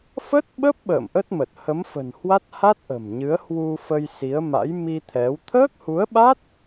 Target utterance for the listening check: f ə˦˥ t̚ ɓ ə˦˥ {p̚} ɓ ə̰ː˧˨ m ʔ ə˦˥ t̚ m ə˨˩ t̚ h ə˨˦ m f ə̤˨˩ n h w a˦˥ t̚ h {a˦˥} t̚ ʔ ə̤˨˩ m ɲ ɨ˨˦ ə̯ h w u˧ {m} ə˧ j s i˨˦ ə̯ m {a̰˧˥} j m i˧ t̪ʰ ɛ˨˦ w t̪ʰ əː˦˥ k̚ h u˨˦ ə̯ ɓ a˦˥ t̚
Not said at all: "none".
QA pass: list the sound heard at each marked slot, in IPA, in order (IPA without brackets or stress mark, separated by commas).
p̚, a˦˥, f, a̰˧˥